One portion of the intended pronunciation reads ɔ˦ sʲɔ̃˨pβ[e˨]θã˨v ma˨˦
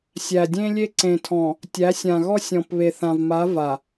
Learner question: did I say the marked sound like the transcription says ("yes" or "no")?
yes